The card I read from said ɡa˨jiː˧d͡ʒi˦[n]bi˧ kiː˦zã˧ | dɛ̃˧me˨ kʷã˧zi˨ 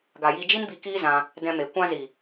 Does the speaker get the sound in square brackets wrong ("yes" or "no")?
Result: no